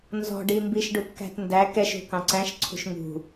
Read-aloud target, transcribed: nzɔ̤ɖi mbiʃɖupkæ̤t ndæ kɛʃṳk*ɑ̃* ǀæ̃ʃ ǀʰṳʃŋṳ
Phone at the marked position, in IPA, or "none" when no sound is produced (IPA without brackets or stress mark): ɑ̃